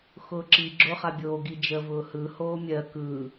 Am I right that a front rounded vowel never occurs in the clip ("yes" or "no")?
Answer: yes